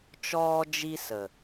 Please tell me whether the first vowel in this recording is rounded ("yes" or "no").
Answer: yes